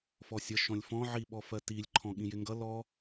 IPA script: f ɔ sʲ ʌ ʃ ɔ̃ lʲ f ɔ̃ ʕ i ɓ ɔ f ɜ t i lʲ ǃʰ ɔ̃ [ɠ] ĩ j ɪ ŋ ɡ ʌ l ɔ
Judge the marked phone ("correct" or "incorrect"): correct